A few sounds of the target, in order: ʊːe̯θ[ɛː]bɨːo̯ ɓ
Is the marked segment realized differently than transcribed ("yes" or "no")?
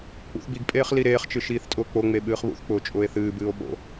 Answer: yes